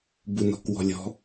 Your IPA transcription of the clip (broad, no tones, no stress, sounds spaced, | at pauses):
b u n ɔ̤ k w ɔ̤ lʲ ɔ̤